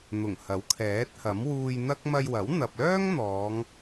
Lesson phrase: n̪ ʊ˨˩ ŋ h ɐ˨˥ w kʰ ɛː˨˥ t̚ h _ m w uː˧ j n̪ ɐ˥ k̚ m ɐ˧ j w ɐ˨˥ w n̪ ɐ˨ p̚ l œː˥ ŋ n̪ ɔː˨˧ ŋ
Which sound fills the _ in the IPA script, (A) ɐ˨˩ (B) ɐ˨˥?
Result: B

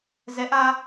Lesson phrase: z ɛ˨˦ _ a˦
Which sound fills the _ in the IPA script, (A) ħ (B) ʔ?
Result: B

